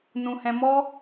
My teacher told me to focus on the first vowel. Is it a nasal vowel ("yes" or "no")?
yes